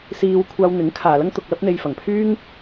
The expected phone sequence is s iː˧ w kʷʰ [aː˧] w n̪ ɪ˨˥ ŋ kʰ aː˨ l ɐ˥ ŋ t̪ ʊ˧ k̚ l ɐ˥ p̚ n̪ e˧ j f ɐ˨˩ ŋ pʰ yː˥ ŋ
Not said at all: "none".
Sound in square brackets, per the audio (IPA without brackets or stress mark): aː˧